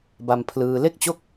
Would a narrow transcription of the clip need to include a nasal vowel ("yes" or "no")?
no